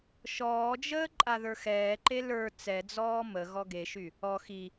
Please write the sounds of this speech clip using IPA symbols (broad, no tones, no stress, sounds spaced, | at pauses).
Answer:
ʃ ɔː d͡ʒ əː ǃʼ a ð ə˞ x ɛː ǃ e l ə˞ t͡s ɛ d͡z ɔː m ə ɣ ɔ ɡ e ʃ y | ɔ x i